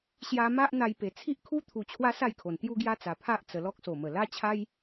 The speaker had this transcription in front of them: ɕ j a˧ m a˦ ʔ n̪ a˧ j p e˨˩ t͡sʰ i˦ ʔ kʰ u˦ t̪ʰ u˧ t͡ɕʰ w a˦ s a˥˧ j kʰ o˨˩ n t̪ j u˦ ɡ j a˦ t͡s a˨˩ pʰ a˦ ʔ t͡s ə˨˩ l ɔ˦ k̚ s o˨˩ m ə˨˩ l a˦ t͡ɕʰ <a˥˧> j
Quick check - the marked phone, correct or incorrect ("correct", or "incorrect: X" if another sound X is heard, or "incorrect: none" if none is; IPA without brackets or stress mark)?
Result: incorrect: a˦